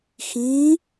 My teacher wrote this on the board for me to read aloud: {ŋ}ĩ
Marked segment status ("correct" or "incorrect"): incorrect